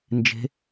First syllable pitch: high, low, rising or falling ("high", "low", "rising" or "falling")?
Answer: rising